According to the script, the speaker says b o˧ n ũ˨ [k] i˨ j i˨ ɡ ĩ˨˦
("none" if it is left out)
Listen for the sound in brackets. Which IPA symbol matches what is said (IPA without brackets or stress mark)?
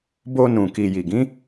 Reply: k